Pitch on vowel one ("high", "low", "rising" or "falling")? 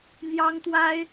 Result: high